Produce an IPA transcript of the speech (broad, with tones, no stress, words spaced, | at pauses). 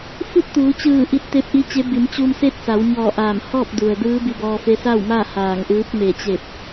fu˥˨t̚t̪uː˩˧t͡ɕɯː˧˩ ʔi˧˥t̚t̪e˧˥p̚ʔi˧˥t͡ɕe˧˥ bi˩˧mt͡ɕuː˧mse˥˨t̚ sa˩˧wɲɔː˧˩ ʔaː˧˩m hɔː˥˨p̚du˩ə̯ dɯː˧˥ bi˧bɔː˧ fe˧˥sa˥˨wmaː˥˨ haː˧˩ŋʔɯː˧˥p̚ me˧˩t͡ɕe˧˩p̚